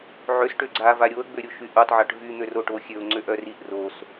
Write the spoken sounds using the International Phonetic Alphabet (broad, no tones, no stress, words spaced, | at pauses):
ʕøs ʈøɡ͡ǀa vaɾʲoə̯ ɡ͡bøɾʲoʃyʔotˤ ʕaʈvy n̪øroʈoxʲøʊ̯ ŋ͡ǀøʔœriʔ ros